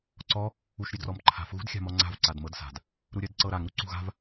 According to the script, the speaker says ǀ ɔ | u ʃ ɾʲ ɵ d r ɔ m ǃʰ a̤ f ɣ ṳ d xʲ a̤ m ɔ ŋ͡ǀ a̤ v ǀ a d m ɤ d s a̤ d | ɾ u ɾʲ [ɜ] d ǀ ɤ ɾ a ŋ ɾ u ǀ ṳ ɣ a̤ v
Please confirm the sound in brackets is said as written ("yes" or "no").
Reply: yes